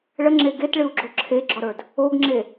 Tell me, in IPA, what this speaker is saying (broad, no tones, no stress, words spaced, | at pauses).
ɭəŋ͡ǁe ɡetɭɨu̯ɡ͡ǁo ǁʰeɡ͡ǁɔɾə˞d | oɡŋ͡ǁe